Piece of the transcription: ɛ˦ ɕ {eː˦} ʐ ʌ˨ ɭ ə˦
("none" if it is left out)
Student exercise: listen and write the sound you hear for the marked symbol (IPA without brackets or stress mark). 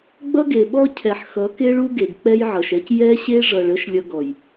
e˦